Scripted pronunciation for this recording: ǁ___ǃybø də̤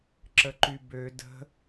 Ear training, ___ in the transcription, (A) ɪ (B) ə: B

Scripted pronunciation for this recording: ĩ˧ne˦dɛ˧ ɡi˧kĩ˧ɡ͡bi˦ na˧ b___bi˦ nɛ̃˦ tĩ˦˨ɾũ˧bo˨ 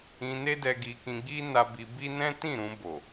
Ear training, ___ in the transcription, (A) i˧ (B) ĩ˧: A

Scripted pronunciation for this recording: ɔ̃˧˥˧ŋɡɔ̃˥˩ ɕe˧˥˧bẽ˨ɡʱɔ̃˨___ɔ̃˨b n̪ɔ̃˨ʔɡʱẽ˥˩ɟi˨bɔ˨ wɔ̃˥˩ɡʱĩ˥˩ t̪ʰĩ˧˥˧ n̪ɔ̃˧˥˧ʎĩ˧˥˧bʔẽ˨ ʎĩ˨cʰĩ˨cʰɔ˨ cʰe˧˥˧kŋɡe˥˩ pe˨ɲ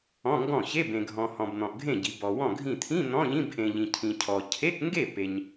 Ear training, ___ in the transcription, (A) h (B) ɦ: A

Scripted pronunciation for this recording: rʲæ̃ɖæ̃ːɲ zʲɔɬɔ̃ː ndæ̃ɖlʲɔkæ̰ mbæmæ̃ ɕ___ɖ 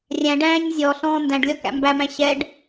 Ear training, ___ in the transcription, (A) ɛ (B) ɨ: A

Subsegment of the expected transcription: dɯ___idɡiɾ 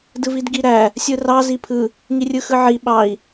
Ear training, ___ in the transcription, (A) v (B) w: A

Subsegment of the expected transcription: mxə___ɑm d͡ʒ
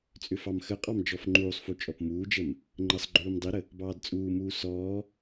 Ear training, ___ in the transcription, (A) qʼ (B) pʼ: A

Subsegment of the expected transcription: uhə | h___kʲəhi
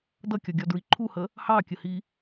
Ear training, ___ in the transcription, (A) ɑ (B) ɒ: A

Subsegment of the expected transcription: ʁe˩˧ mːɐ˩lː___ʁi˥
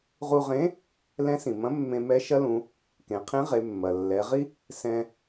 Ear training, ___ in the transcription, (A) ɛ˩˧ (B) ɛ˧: A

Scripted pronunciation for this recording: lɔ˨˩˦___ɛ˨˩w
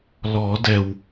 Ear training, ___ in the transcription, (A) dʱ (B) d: B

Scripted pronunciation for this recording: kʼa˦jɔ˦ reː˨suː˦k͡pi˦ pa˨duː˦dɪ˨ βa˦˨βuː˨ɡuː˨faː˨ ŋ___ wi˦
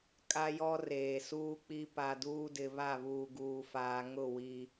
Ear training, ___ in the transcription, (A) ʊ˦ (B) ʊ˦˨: B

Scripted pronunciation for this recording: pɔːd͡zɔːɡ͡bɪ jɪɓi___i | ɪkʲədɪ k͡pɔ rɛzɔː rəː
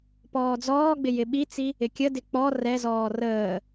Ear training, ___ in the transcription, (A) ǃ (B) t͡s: B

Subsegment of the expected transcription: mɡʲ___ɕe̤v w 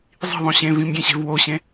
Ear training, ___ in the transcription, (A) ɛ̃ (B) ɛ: A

